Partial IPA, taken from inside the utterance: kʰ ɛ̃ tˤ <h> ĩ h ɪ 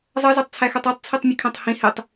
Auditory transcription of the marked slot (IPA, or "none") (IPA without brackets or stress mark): h